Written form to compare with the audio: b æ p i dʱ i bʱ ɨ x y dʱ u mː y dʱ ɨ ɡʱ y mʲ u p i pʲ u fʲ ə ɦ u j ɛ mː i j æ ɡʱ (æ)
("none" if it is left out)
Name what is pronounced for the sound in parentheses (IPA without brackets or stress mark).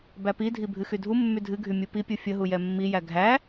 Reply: æ